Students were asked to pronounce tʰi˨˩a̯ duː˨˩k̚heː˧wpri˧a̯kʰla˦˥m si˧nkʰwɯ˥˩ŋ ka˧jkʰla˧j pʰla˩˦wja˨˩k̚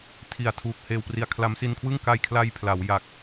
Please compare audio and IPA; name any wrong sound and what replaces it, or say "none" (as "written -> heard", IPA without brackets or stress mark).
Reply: d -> tʰ